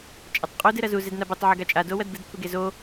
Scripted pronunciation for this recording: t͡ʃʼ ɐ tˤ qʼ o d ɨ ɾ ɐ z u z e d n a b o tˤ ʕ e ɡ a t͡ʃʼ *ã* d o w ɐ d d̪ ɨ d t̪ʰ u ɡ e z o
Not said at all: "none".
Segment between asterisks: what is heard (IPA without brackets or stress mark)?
a